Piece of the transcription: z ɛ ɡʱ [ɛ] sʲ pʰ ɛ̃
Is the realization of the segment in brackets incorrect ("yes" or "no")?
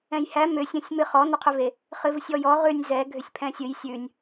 yes